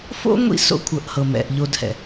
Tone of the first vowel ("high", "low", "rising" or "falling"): high